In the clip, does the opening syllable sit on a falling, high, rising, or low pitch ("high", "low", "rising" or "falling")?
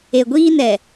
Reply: low